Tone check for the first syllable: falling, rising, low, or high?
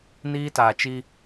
high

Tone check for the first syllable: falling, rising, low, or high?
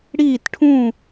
falling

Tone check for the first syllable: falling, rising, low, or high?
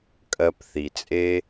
low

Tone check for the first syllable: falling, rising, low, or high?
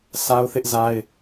high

